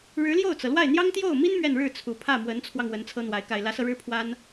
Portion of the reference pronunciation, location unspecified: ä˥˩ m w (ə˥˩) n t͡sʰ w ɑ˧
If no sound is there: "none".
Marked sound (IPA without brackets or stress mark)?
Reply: ə˧˥